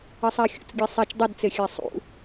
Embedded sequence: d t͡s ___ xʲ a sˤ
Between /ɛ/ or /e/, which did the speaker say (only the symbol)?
e